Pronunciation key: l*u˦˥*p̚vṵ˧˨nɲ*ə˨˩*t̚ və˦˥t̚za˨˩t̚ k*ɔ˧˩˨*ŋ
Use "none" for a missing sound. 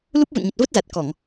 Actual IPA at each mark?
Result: u˦˥, ə˨˩, ɔ˧˩˨

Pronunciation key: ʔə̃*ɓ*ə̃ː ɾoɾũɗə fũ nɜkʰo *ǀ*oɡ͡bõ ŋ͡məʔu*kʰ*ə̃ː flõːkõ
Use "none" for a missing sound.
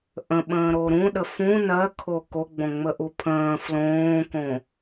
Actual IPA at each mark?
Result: ɓ, k, pʰ

